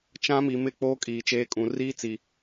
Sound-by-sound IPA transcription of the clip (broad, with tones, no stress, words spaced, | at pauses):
t͡ʃã˦ mi˨mɪ˦˨k͡poː˦ kʼiː˨t͡ʃeː˦kʼũ˨ riː˦t͡si˨